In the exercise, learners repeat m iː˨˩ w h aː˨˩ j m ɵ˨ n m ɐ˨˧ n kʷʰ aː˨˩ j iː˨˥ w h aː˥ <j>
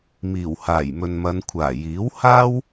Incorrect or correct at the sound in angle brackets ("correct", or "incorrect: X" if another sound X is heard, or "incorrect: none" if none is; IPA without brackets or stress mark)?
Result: incorrect: w